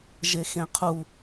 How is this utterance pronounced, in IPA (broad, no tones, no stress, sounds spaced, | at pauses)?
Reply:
ʒ e x ẽ qʰ u